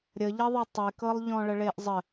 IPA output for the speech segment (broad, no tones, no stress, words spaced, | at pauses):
ɾʲəʎɐðˤɐ tˤekɤlˠʎɔ̃ɭə ɭeʔzˤə